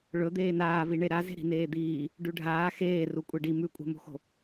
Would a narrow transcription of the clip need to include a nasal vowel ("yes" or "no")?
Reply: no